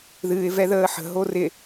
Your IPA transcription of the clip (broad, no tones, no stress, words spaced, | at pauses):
ðɨːɪ̯ vɛðəːħə̤ ɦorɪ